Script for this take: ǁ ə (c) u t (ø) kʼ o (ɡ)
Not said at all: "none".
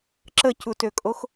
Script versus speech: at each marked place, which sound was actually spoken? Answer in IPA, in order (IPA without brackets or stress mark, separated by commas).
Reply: c, ø, x